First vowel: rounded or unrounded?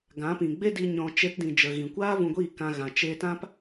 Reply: unrounded